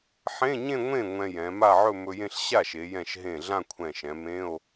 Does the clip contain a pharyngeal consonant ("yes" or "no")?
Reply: yes